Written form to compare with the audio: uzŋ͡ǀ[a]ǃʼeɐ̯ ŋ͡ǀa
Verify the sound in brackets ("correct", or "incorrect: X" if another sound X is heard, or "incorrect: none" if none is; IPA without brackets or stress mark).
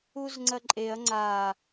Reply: incorrect: ɐ